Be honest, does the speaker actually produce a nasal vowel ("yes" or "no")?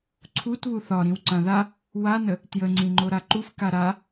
yes